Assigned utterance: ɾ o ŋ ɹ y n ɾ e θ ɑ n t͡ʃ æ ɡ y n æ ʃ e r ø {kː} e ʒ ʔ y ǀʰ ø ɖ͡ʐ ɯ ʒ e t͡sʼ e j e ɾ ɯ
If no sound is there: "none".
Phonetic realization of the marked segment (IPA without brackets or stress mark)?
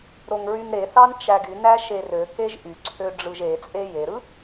k